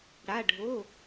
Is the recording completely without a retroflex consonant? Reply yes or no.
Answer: no